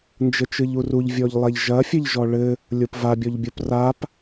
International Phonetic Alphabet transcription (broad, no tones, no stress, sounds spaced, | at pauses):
n d͡ʒ ɘ t͡ʃ ɨ ʎ u r u ʎ vʲ ɔ ʎ lˠ ɛ ʎ ʒ ɐ fʲ ɘ ʎ ʒ ɔ ɭ ɘ | lʲ o p v a bʲ ɔ ʎ bʲ o p r a p